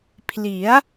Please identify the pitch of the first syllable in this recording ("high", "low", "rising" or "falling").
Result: rising